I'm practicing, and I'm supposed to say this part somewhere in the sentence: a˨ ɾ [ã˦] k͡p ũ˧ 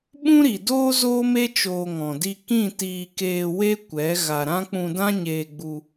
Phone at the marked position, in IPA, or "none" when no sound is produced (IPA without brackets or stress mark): ã˦